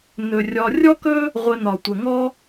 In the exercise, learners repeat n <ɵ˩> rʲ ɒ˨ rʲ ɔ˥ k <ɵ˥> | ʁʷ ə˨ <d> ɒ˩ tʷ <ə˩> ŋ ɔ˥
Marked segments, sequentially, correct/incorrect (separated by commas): correct, correct, incorrect, correct